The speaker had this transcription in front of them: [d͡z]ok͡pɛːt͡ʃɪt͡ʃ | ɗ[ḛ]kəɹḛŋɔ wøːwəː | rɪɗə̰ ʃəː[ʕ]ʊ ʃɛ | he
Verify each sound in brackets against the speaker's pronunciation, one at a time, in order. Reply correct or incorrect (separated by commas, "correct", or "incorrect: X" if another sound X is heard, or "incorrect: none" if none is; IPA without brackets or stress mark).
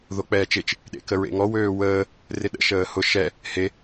incorrect: ð, correct, incorrect: h